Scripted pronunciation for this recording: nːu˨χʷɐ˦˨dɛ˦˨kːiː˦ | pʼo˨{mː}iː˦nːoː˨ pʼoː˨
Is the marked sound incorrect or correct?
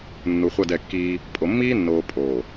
correct